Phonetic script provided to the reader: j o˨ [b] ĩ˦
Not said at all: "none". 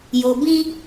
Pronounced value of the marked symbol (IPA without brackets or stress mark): b